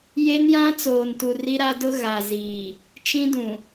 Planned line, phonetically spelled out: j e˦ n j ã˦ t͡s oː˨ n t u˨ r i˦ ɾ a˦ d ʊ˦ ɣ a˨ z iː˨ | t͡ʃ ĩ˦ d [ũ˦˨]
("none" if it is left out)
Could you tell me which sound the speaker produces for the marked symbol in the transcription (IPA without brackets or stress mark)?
ũ˨